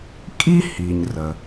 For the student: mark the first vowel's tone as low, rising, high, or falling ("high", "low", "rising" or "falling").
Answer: high